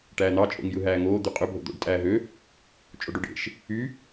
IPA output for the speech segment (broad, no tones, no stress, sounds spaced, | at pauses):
ʈ æː n̪ ɑ t͡ʃʼ o̰ ŋ j ɯ ɦ æː ŋ oː d̪ y qʼ ø bʱ o̰ d̪ o̰ ɖ tʼ æː ɦ ø | t͡ʃʼ o ɖ o ɖ ḛ ʃ | y